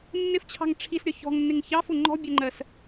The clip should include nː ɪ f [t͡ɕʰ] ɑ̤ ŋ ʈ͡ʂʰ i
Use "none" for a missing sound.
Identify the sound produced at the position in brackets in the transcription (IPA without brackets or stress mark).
t͡ɕʰ